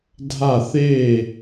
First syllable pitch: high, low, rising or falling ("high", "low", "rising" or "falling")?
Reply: falling